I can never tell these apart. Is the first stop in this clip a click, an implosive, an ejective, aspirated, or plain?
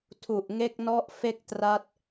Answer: aspirated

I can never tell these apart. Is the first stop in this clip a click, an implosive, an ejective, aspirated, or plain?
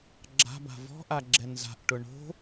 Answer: click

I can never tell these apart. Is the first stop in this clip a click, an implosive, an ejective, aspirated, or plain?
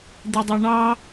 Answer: plain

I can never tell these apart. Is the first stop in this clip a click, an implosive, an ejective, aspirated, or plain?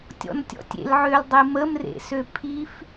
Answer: plain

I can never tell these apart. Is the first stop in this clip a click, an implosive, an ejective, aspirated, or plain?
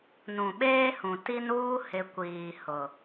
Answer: implosive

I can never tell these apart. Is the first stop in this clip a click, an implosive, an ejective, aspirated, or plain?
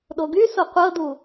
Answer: implosive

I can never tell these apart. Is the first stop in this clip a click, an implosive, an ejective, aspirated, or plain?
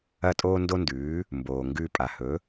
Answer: ejective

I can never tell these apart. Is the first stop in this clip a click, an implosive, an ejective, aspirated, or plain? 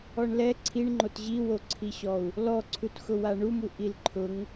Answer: click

